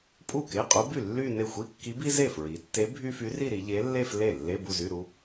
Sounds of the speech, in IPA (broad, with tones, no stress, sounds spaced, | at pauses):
pʼ u˥˩ k e˧˥˧ qʼ u˧˥ b y˥˩ lː y˥˧ n e˥˩ xʷ i˧˥˧ kː i˧˥ b i˥ z e˥˩ f ɹ i˩˧ tː e˧˥ bʱ y˥ f y˧˥ r i˥˧ ɾ i˩˧ ʎ e˧˥ lː e˥˧ f l e˥˩ lː e˧˥˧ b u˥˧ z y˧˥˧ ɾ u˥